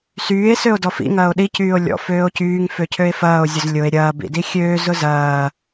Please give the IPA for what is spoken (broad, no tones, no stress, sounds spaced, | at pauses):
s yː e̯ s ø o̯ d ɔ f ḭ ŋ ɐː o̯ ɗ i c yː o̯ lʲ ɔ̰ f øː o̯ c yː ŋ f ø cʰ ø e̯ f ɐː o̯ zʲ ʊ z lʲ ʊ e̯ ɾʲ ɐː b ḭ d i xʲ øː z ʊ z ɐː